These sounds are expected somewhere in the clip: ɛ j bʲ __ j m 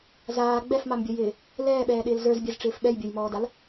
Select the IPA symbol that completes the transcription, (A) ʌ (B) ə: A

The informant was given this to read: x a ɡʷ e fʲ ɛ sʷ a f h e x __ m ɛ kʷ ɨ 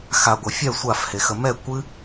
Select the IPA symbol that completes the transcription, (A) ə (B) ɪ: A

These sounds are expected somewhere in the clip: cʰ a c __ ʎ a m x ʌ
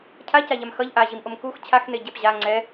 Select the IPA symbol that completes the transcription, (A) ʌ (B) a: B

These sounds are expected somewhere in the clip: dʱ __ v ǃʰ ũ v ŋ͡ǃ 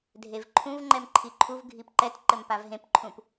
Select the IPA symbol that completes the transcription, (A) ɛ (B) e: B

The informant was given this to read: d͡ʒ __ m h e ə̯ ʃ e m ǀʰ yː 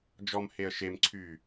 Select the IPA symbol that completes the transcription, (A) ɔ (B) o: A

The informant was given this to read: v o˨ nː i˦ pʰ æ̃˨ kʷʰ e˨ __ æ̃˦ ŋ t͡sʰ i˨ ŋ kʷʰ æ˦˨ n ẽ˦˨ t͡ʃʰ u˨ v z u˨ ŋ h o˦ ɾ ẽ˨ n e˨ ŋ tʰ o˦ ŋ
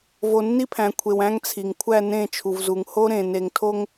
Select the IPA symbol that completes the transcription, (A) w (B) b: A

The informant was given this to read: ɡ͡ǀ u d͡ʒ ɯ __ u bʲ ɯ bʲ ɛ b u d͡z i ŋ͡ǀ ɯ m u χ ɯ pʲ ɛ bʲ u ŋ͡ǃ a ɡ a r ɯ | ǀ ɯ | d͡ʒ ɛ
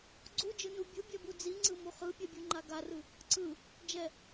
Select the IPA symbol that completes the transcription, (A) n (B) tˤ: A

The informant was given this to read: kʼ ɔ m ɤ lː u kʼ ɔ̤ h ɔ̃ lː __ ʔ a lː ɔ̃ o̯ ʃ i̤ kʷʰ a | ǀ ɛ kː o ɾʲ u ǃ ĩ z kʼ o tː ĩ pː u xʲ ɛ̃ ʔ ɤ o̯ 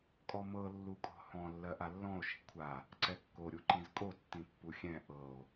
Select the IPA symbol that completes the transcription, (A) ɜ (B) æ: A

